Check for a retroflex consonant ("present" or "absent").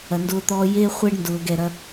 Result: present